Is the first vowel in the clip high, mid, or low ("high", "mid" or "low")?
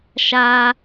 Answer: low